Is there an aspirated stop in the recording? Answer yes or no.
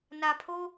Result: yes